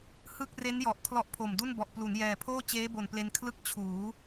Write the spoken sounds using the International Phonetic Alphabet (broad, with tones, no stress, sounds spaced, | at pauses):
h ɯ˥˩ k̚ r e˦˥ n j ɔ˨˩ ʔ kʰ l ɔ˦˥ ʔ pʰ o˨˩ m d u˥˩ n b ɔ˨˩ ʔ p l u˩˦ n j ɛː˨˩ pʰ oː˥˩ t͡ɕ eː˦˥ b o˨˩ n p l e˧ n kʰ l ɯ˦˥ k̚ t͡ɕʰ uː˩˦